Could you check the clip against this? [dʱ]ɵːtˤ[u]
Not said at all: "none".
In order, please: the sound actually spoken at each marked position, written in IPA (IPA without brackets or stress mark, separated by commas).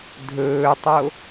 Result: dʱ, o